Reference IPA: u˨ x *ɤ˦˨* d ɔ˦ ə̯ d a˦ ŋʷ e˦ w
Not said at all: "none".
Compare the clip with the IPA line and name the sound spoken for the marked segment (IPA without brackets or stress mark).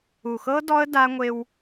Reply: ɤ˦